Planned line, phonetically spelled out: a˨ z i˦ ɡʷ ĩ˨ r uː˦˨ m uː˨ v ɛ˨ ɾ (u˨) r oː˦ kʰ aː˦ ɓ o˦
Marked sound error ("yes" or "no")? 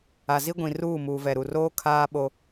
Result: no